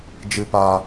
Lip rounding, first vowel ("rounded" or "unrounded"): unrounded